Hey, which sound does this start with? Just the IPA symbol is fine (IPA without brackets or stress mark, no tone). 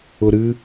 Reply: ʊ